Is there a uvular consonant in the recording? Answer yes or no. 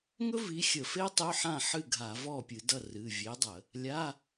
no